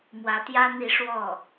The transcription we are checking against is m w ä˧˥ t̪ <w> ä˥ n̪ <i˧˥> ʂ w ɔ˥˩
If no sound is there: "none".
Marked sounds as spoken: j, i˧˥

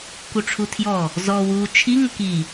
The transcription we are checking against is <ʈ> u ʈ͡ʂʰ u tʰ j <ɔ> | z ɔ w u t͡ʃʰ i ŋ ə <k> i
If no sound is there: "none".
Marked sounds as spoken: k, ɔ, k

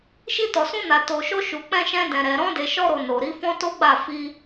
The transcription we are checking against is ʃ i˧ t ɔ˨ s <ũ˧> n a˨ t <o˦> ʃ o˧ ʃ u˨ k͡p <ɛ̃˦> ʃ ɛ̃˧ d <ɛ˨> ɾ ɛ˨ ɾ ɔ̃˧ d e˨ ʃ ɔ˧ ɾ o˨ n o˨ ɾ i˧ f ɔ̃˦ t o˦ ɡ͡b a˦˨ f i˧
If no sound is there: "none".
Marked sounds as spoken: ũ˧, o˨, ɛ̃˧, ɛ̃˨

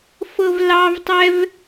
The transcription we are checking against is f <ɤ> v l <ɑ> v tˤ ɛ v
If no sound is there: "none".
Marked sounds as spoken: ɤ, ɑ

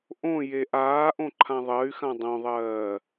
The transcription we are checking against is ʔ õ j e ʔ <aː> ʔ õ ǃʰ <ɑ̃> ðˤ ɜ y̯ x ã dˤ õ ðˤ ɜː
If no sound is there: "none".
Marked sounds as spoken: aː, ã

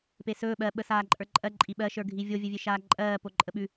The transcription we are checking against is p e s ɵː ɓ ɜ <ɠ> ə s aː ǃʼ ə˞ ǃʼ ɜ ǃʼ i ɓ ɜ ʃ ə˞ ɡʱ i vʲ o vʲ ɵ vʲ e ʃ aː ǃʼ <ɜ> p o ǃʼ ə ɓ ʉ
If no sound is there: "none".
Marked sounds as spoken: ɓ, ɜː

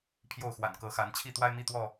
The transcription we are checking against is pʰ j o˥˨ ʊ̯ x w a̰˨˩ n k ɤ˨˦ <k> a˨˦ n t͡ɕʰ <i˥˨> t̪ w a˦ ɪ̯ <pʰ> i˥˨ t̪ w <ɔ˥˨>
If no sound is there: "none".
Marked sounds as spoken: x, i˥˨, m, ɔ˥˨

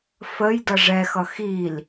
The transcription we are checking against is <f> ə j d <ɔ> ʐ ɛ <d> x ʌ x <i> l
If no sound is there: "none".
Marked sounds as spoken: f, ʌ, none, i

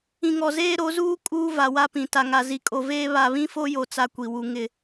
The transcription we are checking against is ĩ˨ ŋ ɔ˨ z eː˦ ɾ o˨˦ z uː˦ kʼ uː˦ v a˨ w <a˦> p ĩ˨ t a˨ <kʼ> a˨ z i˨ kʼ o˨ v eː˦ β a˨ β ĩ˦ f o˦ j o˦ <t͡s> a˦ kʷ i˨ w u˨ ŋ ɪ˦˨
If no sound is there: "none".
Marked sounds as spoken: a˦, ŋ, t͡s

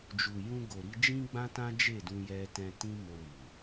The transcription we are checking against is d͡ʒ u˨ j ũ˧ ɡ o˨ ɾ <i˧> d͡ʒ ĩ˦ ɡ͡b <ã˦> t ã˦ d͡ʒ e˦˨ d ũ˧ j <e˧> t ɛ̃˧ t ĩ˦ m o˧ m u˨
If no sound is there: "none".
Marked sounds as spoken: i˧, ã˦, ɛ˧

